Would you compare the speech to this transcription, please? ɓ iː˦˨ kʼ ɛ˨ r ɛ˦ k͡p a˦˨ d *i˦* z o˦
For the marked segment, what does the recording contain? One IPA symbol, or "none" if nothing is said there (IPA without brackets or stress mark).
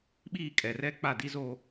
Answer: i˦